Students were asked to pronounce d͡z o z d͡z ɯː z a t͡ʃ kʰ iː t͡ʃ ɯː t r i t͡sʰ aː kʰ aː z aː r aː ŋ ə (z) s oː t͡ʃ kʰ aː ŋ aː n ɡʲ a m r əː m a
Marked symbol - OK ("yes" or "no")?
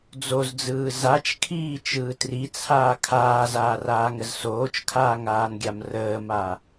yes